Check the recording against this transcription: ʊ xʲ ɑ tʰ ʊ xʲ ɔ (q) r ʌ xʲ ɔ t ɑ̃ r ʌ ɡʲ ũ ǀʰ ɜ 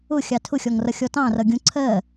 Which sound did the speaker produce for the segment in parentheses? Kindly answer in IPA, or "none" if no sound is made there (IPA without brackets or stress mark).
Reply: ŋ